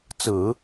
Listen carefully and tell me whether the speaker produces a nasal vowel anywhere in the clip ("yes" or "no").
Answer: no